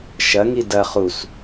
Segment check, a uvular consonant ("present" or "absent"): present